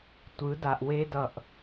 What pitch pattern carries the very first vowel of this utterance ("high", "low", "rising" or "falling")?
rising